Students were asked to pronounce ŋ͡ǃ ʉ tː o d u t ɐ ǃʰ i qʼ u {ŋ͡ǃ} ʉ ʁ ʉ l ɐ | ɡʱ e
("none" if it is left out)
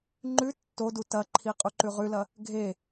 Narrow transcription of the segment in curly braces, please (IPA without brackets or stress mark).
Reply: ǃ